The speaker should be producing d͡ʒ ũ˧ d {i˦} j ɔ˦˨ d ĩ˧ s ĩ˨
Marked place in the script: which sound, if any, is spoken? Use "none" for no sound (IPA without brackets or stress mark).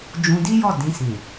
i˦